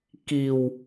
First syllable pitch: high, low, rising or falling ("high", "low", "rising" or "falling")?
low